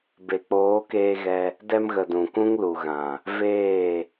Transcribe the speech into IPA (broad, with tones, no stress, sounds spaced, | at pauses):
b e˨ k͡p oː˨˦ k eː˧ ɣ ɛ˧ | d ɛ˧ m ɣ ə˨ d ũ˨ k ũ˦ ŋ l u˨ ɣ ã˨ | v eː˦˨